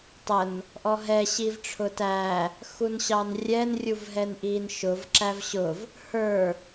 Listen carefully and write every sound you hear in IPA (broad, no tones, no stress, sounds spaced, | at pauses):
tˤ ə n | ʔ ɔ ɦ ɛ ɕ i v ʈ͡ʂʰ ʊ t æ | x u n ɕ ɑ n rʲ ɛ n rʲ u v ɦ ɛ n ʔ i n ʃ ʊ v ǁ æ v ɕ ʊ v | h ə˞